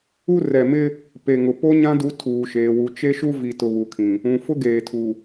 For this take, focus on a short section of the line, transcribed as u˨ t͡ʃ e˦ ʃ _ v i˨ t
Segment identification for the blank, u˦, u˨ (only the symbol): u˦